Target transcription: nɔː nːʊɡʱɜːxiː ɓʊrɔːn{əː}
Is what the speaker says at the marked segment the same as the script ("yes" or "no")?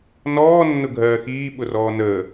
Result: yes